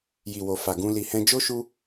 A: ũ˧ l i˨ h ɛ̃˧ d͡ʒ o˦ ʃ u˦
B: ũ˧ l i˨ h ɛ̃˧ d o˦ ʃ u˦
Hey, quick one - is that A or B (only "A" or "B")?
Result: A